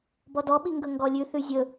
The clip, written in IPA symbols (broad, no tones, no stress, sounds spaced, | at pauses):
b ɔ d ɔ ɓ i ŋ ɡ ɵ ŋ ɡ ɔ lʲ ʉ θ ʉ zʲ ɵ